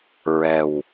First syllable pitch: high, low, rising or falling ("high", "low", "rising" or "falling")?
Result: low